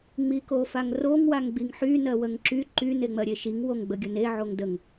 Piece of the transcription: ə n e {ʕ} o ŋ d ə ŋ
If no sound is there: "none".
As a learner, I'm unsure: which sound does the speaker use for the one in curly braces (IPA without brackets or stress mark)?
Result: ʕ